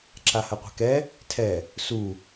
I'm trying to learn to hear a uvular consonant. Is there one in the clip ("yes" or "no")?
yes